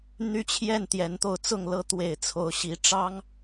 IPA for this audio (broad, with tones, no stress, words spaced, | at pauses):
n̪y˦t͡ɕʰjɛ˥˨n t̪jɛ˨˦nt̪o˧ʊ̯t͡sʊ˥˨ŋ lɤ˦t̪we˨˩ɪ̯ t͡sʰo˨˦ʊ̯ɕi˨˦ ʈ͡ʂɑ˦ŋ